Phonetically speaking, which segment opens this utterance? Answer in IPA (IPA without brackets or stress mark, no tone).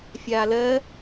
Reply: fʲ